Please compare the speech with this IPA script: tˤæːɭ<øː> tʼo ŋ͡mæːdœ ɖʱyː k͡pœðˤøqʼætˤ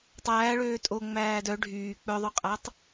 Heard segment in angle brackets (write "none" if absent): øː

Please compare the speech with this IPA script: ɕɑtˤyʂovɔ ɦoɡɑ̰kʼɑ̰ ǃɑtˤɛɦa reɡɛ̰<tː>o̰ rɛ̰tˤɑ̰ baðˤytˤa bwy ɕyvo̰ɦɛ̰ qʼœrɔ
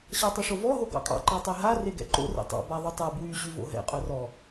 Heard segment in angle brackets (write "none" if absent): ǃ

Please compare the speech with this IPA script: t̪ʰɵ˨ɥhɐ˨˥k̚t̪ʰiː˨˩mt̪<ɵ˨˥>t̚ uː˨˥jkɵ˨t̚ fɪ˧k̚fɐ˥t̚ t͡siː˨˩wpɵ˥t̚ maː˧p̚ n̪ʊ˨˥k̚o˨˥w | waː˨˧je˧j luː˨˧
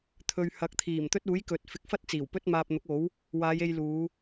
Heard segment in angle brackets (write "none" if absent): ɵ˥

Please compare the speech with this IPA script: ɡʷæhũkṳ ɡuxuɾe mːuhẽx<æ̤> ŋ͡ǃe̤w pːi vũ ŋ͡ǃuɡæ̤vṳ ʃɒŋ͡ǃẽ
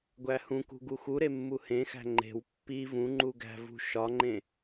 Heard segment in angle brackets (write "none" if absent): æ̤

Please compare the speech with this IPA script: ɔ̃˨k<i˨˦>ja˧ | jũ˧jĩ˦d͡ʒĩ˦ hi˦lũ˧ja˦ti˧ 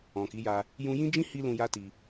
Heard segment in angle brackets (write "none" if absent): i˨˦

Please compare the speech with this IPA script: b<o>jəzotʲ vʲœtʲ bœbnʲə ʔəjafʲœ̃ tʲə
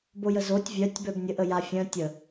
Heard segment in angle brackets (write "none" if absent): o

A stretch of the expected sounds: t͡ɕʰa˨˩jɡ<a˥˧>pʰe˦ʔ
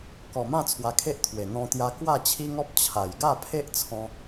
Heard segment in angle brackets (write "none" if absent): a˥˧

